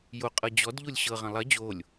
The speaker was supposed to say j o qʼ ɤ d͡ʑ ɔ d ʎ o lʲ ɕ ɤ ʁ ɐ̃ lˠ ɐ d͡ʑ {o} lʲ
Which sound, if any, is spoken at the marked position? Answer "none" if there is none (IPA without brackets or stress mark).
o